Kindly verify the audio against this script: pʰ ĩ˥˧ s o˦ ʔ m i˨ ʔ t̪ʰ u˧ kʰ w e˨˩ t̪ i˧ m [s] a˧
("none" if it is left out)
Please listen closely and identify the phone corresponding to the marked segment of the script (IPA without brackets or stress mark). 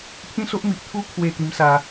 s